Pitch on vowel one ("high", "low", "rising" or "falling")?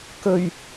low